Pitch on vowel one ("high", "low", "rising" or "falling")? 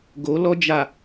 rising